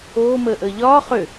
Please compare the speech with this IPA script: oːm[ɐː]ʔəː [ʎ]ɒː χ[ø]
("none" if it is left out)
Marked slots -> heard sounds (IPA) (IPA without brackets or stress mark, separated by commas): əː, ʎ, ø